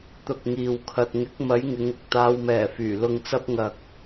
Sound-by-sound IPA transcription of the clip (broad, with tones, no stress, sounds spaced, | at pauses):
t̪ ʊ˨ k̚ ŋ iː˨ w kʰ ɐ˨ t̚ ŋ ɪ˨˥ k̚ m ɐ˨˥ j ŋ ɪ˨˥ ŋ ʊ˨ k̚ t̪ aː˨˧ w m ɛː˨˩ f yː˨˩ l ʊ˧ ŋ t͡s ɐ˥ p̚ ŋ ɐ˨ k̚